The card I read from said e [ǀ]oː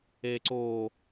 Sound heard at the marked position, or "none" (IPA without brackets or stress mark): ǀ